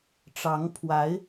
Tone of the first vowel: rising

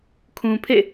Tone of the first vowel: low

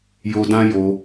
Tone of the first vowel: high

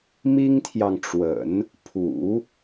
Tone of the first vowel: high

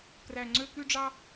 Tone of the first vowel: high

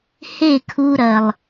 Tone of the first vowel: falling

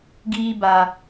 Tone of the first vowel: low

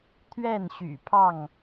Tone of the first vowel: falling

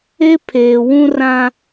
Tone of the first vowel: high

